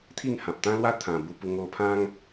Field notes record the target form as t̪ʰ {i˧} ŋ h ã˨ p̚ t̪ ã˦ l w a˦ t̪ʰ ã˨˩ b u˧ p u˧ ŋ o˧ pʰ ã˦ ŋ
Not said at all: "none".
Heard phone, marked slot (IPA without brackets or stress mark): i˥˧